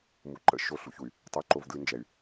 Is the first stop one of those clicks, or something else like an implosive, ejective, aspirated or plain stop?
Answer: click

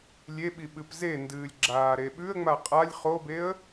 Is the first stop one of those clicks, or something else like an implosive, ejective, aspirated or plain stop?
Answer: implosive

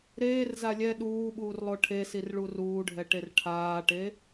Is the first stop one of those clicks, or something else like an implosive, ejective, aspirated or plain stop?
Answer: implosive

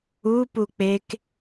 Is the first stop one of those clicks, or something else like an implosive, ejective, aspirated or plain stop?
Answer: plain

